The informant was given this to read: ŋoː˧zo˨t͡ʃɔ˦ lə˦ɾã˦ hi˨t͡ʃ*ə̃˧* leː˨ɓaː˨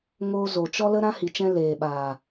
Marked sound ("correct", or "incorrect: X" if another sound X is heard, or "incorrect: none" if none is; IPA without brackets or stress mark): incorrect: ɛ̃˧